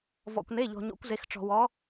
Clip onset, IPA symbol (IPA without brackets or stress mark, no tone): v